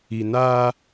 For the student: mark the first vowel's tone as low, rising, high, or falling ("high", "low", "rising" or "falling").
low